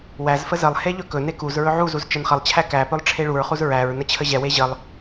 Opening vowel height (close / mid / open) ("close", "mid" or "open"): open